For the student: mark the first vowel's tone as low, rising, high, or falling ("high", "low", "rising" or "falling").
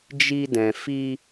high